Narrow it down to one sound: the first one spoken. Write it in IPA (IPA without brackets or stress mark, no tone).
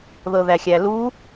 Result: ð